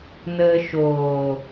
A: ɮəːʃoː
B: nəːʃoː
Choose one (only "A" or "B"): B